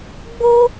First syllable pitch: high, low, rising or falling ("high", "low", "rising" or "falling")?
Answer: high